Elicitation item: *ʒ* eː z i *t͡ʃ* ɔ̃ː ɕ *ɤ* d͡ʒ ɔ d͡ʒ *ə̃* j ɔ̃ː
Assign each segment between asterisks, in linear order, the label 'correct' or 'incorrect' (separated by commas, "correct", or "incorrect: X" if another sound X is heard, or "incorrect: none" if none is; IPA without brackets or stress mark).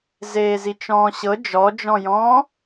incorrect: z, correct, correct, incorrect: ɔ̃